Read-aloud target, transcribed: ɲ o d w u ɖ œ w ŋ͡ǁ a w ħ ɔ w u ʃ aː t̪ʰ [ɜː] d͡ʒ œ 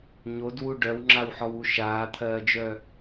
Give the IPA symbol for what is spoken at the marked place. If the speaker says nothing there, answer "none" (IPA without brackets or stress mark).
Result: ɜː